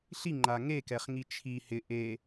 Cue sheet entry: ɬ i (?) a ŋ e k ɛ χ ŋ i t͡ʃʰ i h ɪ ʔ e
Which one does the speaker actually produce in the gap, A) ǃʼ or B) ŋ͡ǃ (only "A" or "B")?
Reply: B